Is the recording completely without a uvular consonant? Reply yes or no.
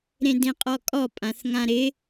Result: no